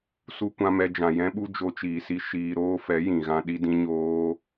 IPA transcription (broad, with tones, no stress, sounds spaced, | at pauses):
s u˧ kʷ ã˧ m ɛ˧ d͡ʒ ã˨ j ɛ̃˦ ɓ u˦ d͡ʒ o˧ t͡ʃ iː˨ s i˧ ʃ iː˧ ɾ oː˦ f ɛ˨˦ j ĩ˨ ɣ ã˧ ɗ i˧ d ĩ˧ ɲ oː˧